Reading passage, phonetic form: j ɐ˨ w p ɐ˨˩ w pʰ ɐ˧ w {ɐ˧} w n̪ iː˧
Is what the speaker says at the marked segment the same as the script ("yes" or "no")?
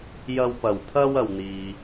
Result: yes